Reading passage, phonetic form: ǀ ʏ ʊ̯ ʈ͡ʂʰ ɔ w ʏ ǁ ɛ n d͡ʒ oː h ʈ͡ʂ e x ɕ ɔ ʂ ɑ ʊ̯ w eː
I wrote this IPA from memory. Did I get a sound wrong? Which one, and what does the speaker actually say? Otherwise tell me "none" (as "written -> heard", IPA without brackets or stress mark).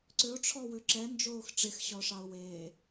h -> x